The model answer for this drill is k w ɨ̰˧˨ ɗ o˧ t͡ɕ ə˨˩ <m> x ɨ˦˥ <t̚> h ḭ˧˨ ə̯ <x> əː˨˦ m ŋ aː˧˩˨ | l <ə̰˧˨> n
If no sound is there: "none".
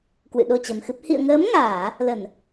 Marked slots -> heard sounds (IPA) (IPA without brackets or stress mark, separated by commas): m, p̚, ŋ, ə˧˩˨